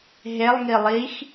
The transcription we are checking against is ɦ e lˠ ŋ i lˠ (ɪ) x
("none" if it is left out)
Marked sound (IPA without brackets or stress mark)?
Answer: i